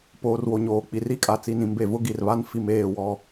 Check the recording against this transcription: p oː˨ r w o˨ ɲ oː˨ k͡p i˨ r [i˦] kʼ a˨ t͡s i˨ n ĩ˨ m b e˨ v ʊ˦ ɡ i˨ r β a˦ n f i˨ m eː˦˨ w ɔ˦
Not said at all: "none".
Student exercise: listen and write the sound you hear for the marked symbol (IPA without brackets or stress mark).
i˦